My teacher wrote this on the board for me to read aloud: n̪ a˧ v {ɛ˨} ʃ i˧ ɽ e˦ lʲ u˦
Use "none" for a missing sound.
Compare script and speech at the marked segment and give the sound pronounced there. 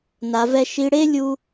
ɛ˦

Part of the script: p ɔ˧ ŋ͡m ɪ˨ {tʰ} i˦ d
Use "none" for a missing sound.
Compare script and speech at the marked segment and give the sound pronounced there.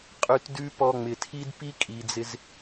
tʰ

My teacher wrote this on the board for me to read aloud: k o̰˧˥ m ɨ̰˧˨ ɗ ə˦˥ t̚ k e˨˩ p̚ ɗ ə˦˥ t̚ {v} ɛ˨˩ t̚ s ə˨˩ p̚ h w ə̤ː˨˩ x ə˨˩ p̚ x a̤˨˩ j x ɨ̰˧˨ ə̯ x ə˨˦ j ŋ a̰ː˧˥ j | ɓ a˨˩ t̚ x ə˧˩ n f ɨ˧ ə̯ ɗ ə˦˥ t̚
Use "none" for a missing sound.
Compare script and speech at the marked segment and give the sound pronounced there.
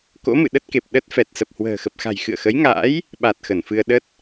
f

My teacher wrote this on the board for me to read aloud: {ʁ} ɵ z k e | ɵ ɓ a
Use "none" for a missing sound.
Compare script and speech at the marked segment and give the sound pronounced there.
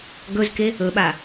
ɡ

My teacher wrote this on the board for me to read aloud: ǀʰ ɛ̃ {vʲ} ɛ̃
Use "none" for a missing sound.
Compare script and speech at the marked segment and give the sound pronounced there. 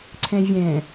vʲ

